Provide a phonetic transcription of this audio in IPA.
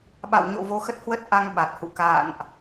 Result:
ɓ a̰˧˨ w ɲ o̰˧˨ v o˨˦ x ə˦˥ t̚ h w ə˦˥ t̚ ʔ a˧ ŋ ɓ a˨˩ t̚ h ṵ˧˨ k a̰ː˧˨ n ʔ

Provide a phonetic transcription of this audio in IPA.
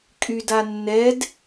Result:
kʼ y d a nː ɛ d

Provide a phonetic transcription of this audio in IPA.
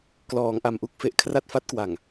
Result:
k l ɔː˩˦ ŋ ʔ a˨˩ m ʔ u˥˩ k̚ f e˨˩ ʔ kʰ r a˥˩ t̚ f a˦˥ t̚ k w a˨˩ ŋ

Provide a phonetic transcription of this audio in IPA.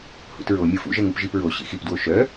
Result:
h ṵ t ɹ o mʲ ɯ f ṵ ʒ ɛ ŋ u p ʒ i p ɹ o ɕ ḭ x i p d w o ʃ œ

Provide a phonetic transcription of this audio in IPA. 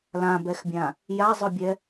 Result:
l ã b ɛ x bʲ ã | j a zˤ ʊ bʲ ɛ

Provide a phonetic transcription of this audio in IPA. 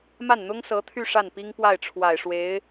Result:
m a˥˩ n n̪ ʊ˥ ŋ s ɤ˧˥ t̪ʰ y˥˧ ʂ a˥˩ n p i˥ ŋ p w a˥˩ ɪ̯ ʈ͡ʂʰ w a˨˩ ɪ̯ ʂ w e˧˥ ɪ̯

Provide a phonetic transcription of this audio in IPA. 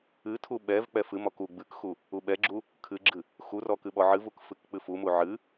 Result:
ɨ tʰ u ɓ ɛ v k͡p ɛ f ɨ m ɔ k u ɡ͡b ɨ k x u | u ɓ ɛ ɡ͡ǁ u | kʰ ɨ ɡ͡ǁ ɨ | x u r ɔ k ɨ ɓ ɔ ʕ ɨ v u k f ɨ k k͡p ɨ f u m u ʕ ɨ

